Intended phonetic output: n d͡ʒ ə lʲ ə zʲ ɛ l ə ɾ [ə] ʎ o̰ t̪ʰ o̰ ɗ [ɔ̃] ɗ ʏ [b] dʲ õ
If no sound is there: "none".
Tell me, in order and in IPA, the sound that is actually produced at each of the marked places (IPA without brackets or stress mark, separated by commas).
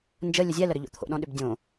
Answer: ʏ, ɔ̃, b